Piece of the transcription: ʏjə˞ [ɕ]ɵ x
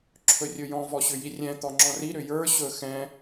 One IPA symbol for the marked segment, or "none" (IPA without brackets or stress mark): ɕ